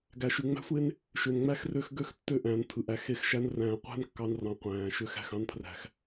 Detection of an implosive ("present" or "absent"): absent